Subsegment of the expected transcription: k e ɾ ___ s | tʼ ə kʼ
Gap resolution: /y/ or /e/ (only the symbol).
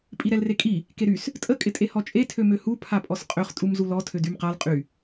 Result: y